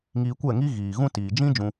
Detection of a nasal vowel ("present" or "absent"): present